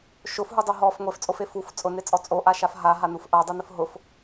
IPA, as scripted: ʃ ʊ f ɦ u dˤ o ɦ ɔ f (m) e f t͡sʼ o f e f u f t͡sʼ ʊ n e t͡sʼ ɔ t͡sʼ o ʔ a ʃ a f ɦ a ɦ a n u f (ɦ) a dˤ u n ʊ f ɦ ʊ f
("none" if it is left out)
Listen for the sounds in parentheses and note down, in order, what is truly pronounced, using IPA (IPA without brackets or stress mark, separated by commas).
ŋʷ, ʔ